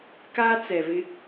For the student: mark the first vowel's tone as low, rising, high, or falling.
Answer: high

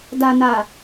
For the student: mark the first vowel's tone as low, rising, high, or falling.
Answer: low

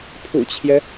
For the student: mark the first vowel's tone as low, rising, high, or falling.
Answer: low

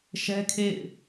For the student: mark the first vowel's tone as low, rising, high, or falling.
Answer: high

